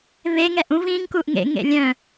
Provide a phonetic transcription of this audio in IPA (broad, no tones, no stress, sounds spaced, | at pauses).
β e ŋ ɛ ʔ ũ v ĩ ŋ k u ʔ ŋ ḛ ŋ ḛ lʲ œ̃